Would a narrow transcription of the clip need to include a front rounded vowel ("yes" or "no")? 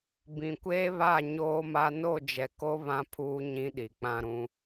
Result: no